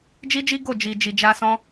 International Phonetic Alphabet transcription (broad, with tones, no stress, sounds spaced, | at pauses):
d͡ʒ i˦ d͡ʒ i˦ ɡ o˦˨ d͡ʒ i˨ d͡ʒ i˨ d͡ʒ a˧ s ɔ̃˦